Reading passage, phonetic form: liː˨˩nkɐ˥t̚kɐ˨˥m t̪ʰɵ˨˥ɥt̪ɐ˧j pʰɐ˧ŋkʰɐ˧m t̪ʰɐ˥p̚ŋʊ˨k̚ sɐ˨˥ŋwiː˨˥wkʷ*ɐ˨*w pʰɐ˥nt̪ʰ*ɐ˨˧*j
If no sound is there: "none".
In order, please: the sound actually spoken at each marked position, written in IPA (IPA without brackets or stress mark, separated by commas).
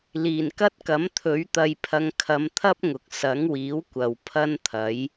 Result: ɐ˨, ɐ˨˥